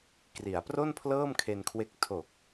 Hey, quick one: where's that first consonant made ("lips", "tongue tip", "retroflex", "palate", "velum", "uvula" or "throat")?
velum